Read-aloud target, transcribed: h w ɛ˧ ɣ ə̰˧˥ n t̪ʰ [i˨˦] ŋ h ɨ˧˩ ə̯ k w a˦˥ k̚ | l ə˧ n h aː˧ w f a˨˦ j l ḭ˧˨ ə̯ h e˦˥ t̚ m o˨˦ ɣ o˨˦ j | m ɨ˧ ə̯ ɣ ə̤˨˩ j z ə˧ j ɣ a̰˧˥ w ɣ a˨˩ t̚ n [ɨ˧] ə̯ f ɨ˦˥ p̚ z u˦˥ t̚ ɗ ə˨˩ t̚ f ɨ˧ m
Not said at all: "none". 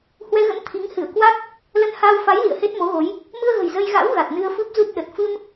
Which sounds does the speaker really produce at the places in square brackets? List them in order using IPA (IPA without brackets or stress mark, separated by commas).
i˨˦, ɨ˧